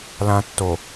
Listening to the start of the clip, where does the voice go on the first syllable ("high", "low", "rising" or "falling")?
high